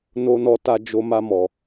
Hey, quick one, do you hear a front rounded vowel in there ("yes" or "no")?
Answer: no